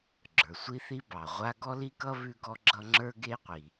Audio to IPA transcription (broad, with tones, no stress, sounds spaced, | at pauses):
ɡ͡ǁ ə˞˩ sʷ i˦ θ i˦ b ɑ˩ ʁʷ a˦ ɡ ɔ˥ l i˥ k ʌ˥ β ʉ˥ ɡ ɔ˥ ɡ͡ǁ ʌ˥ ŋ͡ǁ ə˞˥ ɡ e˥ qʷ i˩